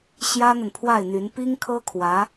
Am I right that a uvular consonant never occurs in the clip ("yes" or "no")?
yes